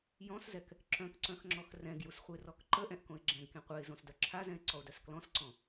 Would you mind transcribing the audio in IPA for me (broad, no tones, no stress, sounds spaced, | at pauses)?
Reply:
j ɔ̃ s z ɛ k | ǁ œ̃ k ǀ œ̃ x ŋ͡ǁ ɔ x r ɛ̃ ɡ j u s χʷ e r ɔ k ǃ ə ʔ ɛ̃ ʔ k õ ɪ̯ ɡ͡ǁ ɛ̃ ɡ k ẽ qʷ ɛ ɪ̯ z õ s d œ ǁʰ a z ɛ̃ ɪ̯ ǀ ɔ ʊ̯ d œ s k l ɔ̃ s ǀ ɔ̃